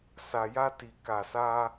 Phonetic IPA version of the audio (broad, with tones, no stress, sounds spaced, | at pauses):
s a˧ j a˦ t i˧ k a˧ s a˦